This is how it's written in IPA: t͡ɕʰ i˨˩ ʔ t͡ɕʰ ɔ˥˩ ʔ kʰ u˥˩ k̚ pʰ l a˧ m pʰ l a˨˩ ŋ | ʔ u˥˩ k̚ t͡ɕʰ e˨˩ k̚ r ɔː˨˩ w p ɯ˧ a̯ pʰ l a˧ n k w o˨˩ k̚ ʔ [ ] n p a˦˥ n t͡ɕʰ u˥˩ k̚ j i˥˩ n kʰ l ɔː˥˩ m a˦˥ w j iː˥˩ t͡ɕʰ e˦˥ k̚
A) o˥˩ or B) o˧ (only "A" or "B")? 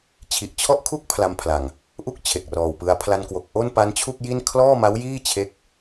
A